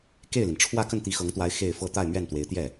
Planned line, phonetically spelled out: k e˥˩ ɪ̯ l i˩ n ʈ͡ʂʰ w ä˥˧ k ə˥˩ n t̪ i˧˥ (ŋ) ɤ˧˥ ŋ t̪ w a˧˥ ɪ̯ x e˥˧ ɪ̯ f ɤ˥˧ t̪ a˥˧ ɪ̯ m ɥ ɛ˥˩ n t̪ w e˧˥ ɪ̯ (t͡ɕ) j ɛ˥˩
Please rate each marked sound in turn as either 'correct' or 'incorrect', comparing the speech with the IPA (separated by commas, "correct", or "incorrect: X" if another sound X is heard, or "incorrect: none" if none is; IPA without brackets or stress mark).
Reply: incorrect: x, incorrect: t̪